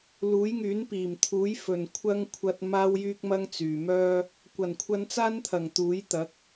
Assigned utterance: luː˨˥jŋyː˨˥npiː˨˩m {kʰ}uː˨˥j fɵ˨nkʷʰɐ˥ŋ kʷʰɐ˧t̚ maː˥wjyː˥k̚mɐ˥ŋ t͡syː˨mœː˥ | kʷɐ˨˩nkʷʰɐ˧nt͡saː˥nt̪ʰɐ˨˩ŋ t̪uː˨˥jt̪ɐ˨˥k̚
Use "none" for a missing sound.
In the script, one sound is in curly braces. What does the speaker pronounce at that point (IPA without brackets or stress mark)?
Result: t̪ʰ